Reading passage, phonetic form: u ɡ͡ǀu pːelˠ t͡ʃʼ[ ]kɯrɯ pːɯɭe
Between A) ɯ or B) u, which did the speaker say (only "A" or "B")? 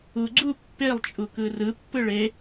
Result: B